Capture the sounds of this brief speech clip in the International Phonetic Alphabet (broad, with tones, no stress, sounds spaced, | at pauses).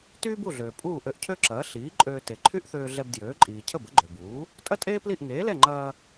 t yː˥ b u˥˩ ɮ øː˩ pʼ uː˥˩ ʔ ø˧ ʔ cʰ ø˥ ǁ ɐː˩˥ ɬ iː˩˥ ǃʼ øː˧ t e˩ ǃʰ y˥ ʔ θ øː˧ ɮ ɛ˧ b d j øː˩˥ ǃʼ iː˩ cʰ ə˥˩ b ə˩˥ ɡ͡ǃ ø˩ b uː˩˥ | tʼ ɐ˥ tʼ eː˥ p l i˥˩ ʔ ŋ eː˩˥ l ɛ˥˩ ŋ͡ǃ ɐː˧